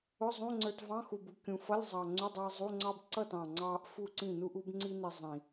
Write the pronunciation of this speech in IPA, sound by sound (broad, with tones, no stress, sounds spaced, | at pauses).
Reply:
ʊ˧˥˧ zˤ ũ˧˥˧ ŋ͡ǀ ə˞˧ t v ɑ̃˧˥˧ x u˨˩ b u˨˩ kʲ ũ˨˩ f ʌ˧˥˧ lʲ zˤ ɑ˨˩ ŋ͡ǀ u˧˥˧ dˤ iː˧ zˤ u˧˥˧ ŋ͡ǀ ɑ˥ b ǀ ʌ˥˨ t ɑ̃˨˩ ŋ͡ǀ ɑː˧ ʔ f u˥˨ ǀ ĩ˥˨ n u˥ ʔ u˥ b ŋ͡ǀ i˥ n i˧ zˤ ĩ˨˩